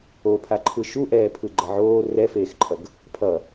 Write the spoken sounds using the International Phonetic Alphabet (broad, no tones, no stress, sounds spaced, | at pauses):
o pʰ a ǃʰ ɯ ʃ u ʔ ɛː pʰ ɯ ɡ͡ǃ ʌ ʕ oː r ɛ f eː x ǃʼ ʌ ɡ | pʰ ʌ